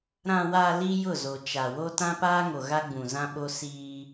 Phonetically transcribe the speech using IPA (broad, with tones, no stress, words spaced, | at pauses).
ɾã˨wa˨ li˦jʊ˦˨zo˨ t͡ʃa˨wo˦ tã˦paː˦ŋo˨ ɣa˦ɡ͡bũ˨zã˦ɓo˦ siː˦